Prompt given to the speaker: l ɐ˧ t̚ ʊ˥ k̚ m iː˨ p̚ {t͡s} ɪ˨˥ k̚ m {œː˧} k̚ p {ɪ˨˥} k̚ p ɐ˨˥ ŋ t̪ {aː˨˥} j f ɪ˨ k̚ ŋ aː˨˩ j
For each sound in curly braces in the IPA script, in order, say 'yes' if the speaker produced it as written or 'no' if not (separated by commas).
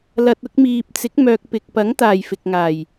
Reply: yes, no, no, no